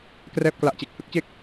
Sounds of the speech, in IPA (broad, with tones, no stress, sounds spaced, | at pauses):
k r ɛː˥˩ p̚ k l a˦˥ ʔ t͡ɕ e˨˩ k̚ h ɯ˦˥ k̚ t͡ɕ e˥˩ k̚